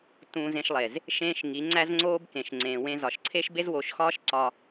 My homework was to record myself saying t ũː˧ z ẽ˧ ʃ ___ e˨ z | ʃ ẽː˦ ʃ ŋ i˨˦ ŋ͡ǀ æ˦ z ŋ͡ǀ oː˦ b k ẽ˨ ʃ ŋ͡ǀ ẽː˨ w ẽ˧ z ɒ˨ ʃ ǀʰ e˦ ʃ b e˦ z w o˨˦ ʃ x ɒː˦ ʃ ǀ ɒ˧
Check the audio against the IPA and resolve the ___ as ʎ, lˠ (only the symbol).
lˠ